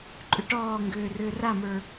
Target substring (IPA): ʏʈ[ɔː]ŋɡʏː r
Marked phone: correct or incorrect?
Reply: correct